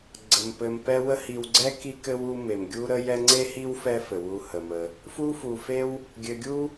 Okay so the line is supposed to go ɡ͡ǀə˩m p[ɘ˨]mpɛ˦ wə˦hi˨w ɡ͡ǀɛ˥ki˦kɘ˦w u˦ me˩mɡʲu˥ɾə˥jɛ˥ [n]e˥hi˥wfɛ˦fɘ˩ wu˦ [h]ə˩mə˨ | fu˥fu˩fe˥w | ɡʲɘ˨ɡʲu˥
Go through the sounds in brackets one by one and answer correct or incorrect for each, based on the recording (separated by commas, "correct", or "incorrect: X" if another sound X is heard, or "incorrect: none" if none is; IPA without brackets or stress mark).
correct, incorrect: ŋ͡ǀ, correct